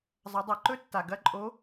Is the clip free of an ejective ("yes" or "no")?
no